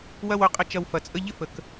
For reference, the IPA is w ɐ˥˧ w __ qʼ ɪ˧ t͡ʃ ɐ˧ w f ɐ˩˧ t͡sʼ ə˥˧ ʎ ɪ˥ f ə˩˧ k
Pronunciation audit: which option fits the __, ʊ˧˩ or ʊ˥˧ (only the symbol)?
ʊ˧˩